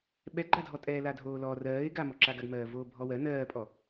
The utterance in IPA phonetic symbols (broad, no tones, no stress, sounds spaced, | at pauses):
ɓ ɛ ɡ͡ǃ a dʱ ɔ tʼ ɛː l a dʱ oː l ɔ r ɜː ɪ̯ ɡ a m ɔ ǁ a ɡ a ɡ m ɜː v oː bʱ ɔ w ɜ n ɜː pʼ ɔ